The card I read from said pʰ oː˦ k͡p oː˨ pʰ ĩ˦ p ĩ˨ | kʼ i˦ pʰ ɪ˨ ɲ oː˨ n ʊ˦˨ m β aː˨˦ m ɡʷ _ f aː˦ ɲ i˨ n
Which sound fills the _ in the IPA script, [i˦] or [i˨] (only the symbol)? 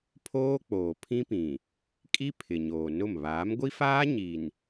i˦